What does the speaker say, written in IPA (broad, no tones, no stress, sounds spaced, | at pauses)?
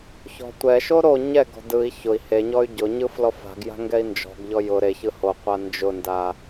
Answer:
ç ɔ̤ tʷ ɛ ʃ o ɾ o ɲ ɛ ɡ ɔ̤ d ɯ i̯ ç ʊ i̯ h e ɲ ɔ y̯ ɟ ʊ ɲ ɯ f l ɔ f a̤ ɡ j a̤ ŋ ɡ ɛ i̯ n d͡ʒ ɔ̤ ɡ ʎ ɔ j ʊ ɾ e ç ɯ h o qʷ a n d͡ʒ ʊ n d a